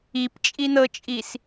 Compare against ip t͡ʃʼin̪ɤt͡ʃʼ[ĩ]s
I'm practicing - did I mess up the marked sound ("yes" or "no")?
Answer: yes